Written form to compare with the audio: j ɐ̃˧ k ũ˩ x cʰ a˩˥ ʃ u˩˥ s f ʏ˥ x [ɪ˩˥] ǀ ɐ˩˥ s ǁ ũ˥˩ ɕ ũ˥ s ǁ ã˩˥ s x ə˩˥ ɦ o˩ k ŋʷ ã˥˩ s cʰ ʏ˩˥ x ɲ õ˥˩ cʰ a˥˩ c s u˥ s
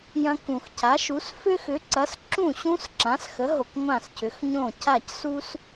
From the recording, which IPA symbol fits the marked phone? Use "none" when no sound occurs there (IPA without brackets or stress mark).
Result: ʏ˩˥